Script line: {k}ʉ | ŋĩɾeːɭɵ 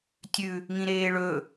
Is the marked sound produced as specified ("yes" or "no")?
no